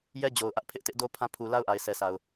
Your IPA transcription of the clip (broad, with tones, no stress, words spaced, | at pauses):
jɛ˦d͡ʑo˨ʊ̯ʔä˦ʔ pʰɪ˦ʔtɪ˦ʔdo˦pʰã˦ pʰu˨ la˦ʊ̯ʔa˨ɪ̯sʰɛ˨sʰa˨ʊ̯